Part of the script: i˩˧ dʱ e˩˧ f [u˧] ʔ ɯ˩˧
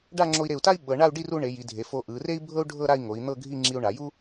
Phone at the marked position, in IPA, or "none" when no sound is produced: o˧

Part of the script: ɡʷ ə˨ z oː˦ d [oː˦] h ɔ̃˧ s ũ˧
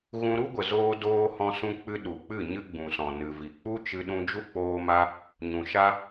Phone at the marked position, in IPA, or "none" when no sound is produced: oː˦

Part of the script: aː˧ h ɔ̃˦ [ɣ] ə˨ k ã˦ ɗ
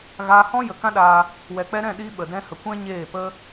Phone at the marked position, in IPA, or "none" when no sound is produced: j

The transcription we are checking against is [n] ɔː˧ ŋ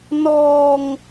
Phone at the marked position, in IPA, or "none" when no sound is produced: n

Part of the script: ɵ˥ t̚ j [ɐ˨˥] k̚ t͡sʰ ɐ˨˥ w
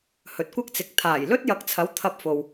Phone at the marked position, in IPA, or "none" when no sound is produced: ɐ˨˥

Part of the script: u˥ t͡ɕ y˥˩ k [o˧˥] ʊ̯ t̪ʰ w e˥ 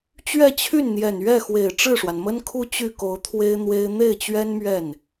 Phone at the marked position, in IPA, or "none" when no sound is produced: o˧˥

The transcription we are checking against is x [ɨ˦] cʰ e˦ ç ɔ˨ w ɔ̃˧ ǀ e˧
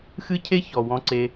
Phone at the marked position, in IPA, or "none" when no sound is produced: ɨ˦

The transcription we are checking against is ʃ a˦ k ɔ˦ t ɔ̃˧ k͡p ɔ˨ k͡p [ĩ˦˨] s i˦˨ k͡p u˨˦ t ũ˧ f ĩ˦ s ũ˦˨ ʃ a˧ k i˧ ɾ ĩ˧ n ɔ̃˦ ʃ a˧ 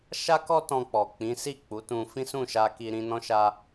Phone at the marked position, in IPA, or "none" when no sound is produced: ĩ˨˦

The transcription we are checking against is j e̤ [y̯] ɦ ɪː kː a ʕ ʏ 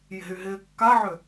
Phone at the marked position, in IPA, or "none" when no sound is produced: y̯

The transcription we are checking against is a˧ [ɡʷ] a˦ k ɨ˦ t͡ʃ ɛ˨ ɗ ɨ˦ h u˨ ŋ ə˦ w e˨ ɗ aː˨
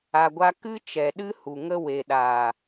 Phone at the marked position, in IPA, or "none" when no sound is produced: ɡʷ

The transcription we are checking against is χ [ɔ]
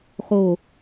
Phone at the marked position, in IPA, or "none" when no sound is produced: o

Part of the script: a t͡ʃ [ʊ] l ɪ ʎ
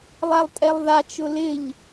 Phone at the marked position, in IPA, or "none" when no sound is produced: ʊ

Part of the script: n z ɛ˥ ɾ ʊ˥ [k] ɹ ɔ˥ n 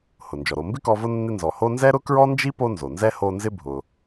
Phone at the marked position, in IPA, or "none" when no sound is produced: k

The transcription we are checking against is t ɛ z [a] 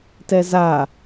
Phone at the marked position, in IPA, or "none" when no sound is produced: a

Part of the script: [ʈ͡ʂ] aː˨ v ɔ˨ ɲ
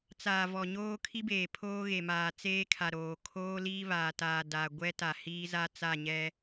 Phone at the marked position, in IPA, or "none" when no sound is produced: t͡s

